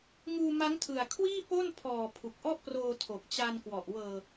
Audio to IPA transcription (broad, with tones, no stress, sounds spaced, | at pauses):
ŋ uː˧ m a˦˥ ŋ tʰ ɯ˨˩ a̯ kʰ w iː˥˩ p o˥˩ n pʰ ɔː˨˩ pʰ u˨˩ k̚ ʔ ɔ˥˩ ʔ p r oː˧ tʰ o˨˩ k̚ t͡ɕ a˧ n k w ɔ˨˩ ʔ w ɤː˨˩